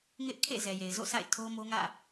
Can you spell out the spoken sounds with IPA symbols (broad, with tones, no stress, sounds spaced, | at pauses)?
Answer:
ŋ ɪ˦ ʔ kʰ ḛ˦˨ z ɛ˨ j e˨ ɪ̯ z o̰˦˨ s a̰˦˨ ɪ̯ tʰ o˦ m o˦ ŋ ä̰˦˨